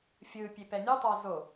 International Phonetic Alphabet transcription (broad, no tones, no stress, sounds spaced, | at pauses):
fʲ ɯ pʲ e p ɛ nʲ ɯ tˤ a z o